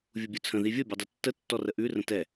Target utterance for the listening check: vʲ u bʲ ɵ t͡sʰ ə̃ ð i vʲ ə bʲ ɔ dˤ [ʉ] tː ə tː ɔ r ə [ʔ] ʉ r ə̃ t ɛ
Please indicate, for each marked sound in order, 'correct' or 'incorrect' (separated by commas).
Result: correct, correct